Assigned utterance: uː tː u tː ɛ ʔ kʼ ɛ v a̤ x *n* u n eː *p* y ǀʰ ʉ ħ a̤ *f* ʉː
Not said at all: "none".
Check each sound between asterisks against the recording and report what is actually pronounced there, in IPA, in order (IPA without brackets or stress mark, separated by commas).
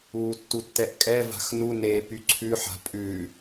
n, p, pʼ